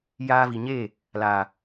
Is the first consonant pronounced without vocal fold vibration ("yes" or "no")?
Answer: no